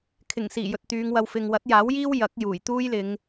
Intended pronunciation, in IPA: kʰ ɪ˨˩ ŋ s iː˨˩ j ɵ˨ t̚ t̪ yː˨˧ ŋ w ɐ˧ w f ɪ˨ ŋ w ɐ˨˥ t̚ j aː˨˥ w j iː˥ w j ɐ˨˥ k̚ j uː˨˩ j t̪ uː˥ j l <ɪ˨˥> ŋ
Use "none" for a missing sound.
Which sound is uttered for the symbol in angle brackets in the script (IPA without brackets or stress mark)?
ɪ˨˧